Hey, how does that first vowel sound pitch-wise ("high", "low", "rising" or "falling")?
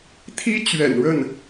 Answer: high